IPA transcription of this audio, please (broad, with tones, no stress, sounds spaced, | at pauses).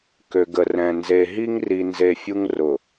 k ø˨ ɡ ə˨ r ɛ̃˨ n z e˨ ɦ i˦ ŋ r i˨ n z e˨ fʲ u˦ ŋ r ʊ˨